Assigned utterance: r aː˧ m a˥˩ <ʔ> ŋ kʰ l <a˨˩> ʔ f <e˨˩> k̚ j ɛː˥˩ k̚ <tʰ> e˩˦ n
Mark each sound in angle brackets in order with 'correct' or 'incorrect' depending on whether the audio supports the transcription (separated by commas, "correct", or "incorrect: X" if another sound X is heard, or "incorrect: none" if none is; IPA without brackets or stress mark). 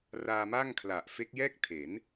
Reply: incorrect: none, correct, incorrect: e˦˥, correct